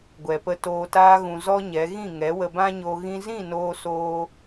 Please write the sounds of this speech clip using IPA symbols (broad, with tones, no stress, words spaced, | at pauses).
ɡʷɛ˨pə˧ toː˧taː˦ɣũ˧ zɔ˦ɲɛ˨˦ ɣĩ˦˨ŋɛ˨˦wə˧ bã˦ɲo˧ ɣĩ˧zĩ˦˨noː˧soː˧